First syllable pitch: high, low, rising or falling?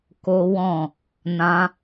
high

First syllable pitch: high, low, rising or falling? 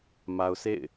low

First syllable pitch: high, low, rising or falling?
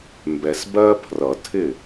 low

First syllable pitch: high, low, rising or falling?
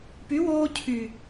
rising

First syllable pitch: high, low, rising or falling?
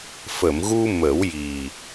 low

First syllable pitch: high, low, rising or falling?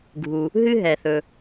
low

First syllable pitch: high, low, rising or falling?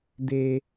high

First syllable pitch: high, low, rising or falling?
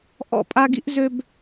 falling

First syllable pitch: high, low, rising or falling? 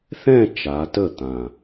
falling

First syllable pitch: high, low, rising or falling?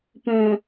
low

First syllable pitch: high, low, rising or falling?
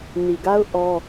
low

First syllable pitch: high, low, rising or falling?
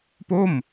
falling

